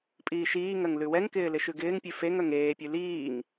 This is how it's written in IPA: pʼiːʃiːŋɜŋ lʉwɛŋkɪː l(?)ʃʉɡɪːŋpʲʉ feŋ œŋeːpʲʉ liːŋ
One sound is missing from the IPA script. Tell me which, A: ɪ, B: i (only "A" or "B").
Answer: A